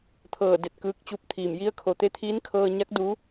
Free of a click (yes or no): yes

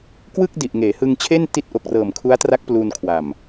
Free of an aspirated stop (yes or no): no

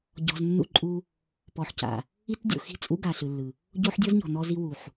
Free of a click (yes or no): no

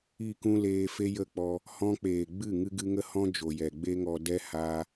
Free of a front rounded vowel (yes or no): yes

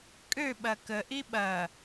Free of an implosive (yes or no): no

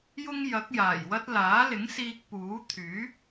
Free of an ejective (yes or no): yes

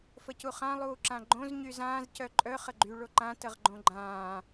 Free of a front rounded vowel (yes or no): no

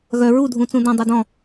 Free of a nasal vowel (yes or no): no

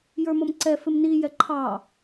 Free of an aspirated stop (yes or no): no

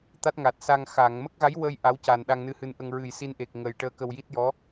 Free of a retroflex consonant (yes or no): no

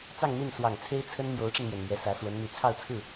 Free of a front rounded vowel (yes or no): no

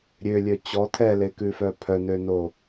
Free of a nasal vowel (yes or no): yes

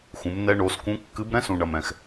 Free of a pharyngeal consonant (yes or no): yes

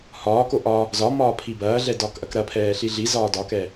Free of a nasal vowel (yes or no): yes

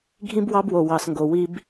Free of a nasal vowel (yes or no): no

